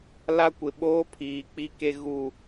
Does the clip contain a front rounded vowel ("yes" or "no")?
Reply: no